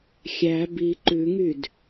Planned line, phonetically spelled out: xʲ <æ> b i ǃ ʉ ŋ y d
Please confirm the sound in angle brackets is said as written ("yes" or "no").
yes